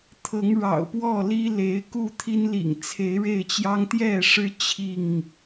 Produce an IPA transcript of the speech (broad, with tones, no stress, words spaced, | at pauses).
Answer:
t̪ʰɤ˨˦ŋɻɑ̰˨˩ʊ̯ pwɔ˥˨li˦le˨˦ɪ̯ ku˥˨ t̪ʰi˦nlḭ˨˩ŋ t͡sʰe˨˦ɪ̯ɻe˥˨ɪ̯t͡ɕjɑ˦ŋ t̪jɛ˥˨ʂɻ̩˦ t͡ɕʰi˥˨ŋ